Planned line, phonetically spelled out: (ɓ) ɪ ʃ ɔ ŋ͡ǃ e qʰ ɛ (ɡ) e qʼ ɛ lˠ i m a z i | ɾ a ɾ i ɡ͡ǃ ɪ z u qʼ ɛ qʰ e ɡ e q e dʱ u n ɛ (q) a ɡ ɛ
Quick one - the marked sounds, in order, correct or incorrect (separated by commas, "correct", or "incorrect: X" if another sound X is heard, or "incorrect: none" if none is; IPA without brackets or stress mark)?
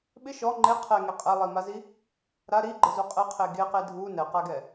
correct, incorrect: ŋ, correct